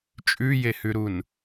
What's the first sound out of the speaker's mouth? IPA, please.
t͡ʃʼ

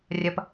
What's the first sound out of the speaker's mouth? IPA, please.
rʲ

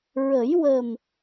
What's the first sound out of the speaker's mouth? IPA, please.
ɹ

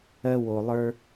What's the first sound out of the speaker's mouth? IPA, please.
ɜ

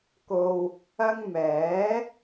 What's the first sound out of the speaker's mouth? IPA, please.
k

